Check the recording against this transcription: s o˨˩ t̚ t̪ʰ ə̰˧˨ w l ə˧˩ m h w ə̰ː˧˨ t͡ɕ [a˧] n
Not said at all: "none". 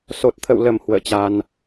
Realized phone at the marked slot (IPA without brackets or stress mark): a˧